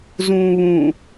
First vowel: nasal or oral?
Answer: nasal